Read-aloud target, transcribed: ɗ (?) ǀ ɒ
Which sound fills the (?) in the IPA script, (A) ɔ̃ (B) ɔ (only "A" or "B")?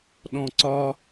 A